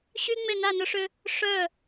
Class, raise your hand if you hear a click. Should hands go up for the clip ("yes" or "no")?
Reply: no